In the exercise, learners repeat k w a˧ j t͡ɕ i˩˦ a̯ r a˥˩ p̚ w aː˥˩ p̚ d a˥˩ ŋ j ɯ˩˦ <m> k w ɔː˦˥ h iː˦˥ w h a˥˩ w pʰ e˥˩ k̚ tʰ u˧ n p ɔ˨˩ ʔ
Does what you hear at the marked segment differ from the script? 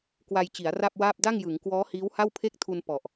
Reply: yes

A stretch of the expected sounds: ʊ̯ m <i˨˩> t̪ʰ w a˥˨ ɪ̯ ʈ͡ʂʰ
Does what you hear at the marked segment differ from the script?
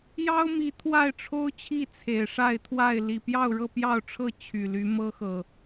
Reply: yes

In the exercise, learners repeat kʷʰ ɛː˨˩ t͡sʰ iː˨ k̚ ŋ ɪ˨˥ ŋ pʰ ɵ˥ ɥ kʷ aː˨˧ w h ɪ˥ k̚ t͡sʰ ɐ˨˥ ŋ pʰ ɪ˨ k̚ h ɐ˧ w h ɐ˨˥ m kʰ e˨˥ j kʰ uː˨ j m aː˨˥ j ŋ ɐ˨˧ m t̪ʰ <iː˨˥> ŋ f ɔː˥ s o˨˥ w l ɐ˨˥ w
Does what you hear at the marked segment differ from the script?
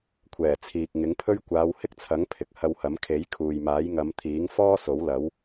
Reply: no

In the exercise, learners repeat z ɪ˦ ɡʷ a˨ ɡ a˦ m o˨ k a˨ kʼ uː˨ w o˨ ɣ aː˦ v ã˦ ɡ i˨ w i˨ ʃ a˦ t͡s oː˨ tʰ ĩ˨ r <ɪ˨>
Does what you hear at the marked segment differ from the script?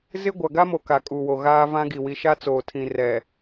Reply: yes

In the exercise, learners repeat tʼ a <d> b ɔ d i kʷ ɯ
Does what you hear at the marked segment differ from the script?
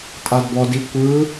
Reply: no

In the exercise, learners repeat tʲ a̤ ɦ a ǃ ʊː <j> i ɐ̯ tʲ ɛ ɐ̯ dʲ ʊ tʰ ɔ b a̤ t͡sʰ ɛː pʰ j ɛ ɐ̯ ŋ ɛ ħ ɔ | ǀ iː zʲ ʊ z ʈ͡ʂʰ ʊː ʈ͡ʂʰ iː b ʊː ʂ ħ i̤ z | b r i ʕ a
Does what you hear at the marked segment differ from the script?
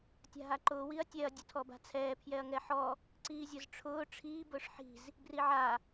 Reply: yes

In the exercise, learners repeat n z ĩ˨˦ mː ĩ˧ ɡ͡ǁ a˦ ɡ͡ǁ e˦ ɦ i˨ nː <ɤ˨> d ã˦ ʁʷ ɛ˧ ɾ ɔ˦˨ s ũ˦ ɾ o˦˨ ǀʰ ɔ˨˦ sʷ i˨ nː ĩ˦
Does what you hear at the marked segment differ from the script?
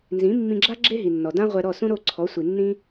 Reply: yes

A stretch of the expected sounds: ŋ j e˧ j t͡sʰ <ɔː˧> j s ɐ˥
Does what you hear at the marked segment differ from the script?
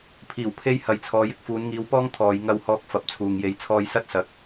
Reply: no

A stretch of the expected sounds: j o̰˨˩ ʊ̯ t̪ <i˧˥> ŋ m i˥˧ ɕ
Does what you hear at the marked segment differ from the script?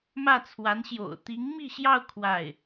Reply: no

